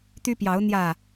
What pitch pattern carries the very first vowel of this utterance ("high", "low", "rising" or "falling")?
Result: high